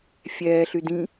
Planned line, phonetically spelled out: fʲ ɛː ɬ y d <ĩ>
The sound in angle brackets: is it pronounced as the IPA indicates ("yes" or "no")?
yes